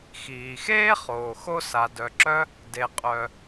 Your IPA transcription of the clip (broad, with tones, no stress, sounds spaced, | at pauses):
x iː˩ x eː˥ χ oː˩ x o˥ s a˩ d œ˩ ǁ œ˥ | d e˩ qʼ œ˩